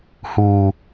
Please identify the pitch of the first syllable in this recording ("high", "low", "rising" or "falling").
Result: low